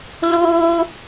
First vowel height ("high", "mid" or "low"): mid